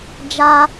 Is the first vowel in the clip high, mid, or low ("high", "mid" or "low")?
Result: low